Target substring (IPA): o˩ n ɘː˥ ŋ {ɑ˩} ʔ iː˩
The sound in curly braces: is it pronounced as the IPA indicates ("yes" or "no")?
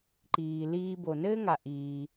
no